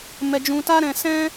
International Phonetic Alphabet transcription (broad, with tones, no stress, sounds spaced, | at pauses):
m ɛ˧ d͡ʒ ũ˧ t a˦ ɾ ɛ̃˧ s ɛ̃˦